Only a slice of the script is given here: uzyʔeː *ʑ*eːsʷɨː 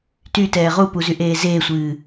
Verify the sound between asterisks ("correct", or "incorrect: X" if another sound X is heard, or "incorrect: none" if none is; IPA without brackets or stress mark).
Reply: incorrect: z